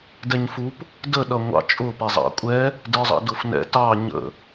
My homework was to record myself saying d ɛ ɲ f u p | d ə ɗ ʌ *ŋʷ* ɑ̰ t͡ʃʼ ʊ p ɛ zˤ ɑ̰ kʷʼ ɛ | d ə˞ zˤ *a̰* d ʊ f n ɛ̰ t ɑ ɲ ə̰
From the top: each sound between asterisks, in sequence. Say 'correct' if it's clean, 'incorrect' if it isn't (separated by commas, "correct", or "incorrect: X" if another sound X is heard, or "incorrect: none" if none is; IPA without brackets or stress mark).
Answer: correct, incorrect: ɑ̰